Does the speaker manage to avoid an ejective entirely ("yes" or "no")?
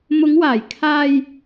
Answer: yes